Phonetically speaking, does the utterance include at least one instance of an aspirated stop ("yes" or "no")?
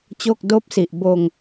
no